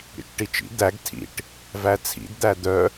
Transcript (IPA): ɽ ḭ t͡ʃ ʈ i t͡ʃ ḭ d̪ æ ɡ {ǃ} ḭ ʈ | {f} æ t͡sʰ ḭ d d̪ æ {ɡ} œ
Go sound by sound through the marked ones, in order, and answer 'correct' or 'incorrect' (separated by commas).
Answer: incorrect, incorrect, incorrect